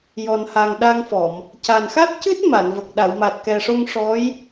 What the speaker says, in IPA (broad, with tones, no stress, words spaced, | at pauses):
jɔ˨˩nha˨˩ŋɗa˧ŋfɔ˨˩˨m | ca˨˩nxa˦˥t̚cɨ˦˥t̚ ma˨˩˨nvə˨˩k̚ ɗa˨˩˨wma˨˩t̚kɛ˨˩ʂo˧ŋ ʂɔ˧˥j